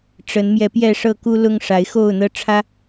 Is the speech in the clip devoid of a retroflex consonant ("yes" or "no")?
no